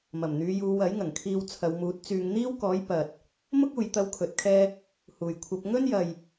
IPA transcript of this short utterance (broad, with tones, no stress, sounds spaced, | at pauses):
m ɐ˨˩ m n̪ yː˨˧ j uː˨˧ w ɐ˨˥ j ŋ ɐ˨˩ ŋ kʰ iː˧ w t͡sʰ ɐ˨˧ w m uː˨˥ t̚ t͡s yː˧ ŋ n̪ iː˥ w k ɔː˨˥ j p ɐ˨ t̚ | m ʊ˥ k̚ uː˨ j t̪ ɐ˥ w kʰ ɵ˨˥ t̚ kʰ ɛː˥ | h uː˨˩ j kʷʰ ɐ˧ p̚ ŋ ɵ˥ n j ɐ˨ j